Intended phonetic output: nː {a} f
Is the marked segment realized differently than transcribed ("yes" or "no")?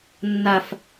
no